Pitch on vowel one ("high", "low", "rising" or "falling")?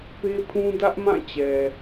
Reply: high